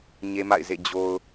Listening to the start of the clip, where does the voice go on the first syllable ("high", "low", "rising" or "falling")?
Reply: high